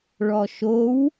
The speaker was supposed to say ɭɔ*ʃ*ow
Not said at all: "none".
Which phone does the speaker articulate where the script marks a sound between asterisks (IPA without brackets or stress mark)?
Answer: ʃ